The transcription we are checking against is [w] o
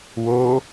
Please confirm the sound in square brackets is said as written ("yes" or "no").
yes